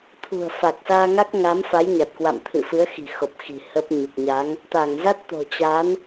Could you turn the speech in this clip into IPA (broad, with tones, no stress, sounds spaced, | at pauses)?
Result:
t̪ʰ ṳ˨˩ ə̯ f a˨˩ k̚ s aː˧ ŋ a˦˥ k̚ ŋ a˨˦ m f a˨˦ j ɲ a˨˩ t̚ k w a̰˧˨ m t̪ʰ ɨ̰˧˨ f ɨ˨˦ ə̯ x i̤˨˩ x o˨˩ p̚ x i̤˨˩ h ə˦˥ p̚ ɲ u˨˩ k̚ ɲ a˨˦ ŋ | t̪ aː˧˩ ŋ z a˦˥ t̚ t̪ o̤˨˩ t͡ɕ a˨˦ n